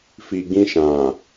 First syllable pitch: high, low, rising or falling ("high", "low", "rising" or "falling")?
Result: low